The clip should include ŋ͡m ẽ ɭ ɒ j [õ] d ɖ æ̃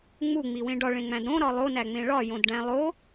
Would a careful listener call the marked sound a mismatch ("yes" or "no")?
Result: no